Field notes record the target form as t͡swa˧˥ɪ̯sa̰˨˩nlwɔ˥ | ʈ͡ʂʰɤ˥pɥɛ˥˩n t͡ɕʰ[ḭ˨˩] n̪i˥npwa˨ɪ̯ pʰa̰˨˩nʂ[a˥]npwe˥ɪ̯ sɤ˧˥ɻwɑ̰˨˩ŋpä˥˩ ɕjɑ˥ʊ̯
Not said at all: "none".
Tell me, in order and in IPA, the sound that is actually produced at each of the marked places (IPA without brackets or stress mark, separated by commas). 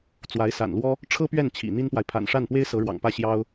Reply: ḭ˨˩, a˥˩